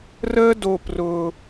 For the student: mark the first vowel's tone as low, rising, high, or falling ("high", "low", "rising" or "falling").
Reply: high